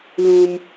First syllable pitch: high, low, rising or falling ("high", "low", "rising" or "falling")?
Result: high